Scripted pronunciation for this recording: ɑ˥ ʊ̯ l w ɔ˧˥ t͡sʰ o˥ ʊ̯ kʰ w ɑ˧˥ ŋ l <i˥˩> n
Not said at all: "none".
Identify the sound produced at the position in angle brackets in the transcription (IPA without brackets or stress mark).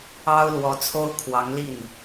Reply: i˥˩